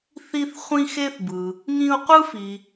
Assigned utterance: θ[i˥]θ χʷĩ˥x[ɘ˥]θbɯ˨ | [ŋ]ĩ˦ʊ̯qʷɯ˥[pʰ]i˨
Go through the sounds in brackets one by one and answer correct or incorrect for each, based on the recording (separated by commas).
correct, incorrect, correct, incorrect